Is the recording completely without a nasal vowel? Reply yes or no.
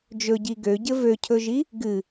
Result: yes